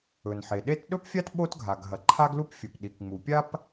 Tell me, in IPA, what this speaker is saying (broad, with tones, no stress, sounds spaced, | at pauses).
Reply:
ɵ˩ n ħ e˩ ɗ e˥ t ɗ ɵ˥ p fʲ a˥ t ɓ o˥ t ɡʱ a˩ ɡ ɦ ɐ˩ ǃʰ a˥ ɡ l u˥ p fʲ ɵ˩ p ɗ i˩ k ŋ͡m u˩ pʲ a˥ p